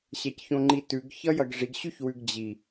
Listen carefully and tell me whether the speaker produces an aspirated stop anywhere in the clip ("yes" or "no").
no